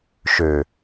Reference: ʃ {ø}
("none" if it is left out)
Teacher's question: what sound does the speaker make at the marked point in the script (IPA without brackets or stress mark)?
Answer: ø